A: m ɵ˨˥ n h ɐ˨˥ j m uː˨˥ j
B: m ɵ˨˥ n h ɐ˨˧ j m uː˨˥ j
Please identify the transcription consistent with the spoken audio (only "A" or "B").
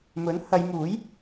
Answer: B